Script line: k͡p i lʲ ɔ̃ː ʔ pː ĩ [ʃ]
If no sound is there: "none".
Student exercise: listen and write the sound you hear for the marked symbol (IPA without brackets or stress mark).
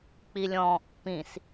s